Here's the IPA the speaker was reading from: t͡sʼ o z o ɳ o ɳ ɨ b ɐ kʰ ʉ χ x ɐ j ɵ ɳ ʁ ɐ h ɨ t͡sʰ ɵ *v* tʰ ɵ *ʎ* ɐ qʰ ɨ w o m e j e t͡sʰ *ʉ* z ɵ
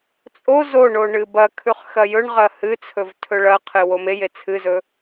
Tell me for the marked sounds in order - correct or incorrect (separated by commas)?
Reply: correct, incorrect, incorrect